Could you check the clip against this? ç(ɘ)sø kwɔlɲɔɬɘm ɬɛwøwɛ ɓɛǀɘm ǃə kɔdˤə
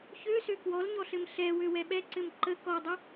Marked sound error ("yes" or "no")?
yes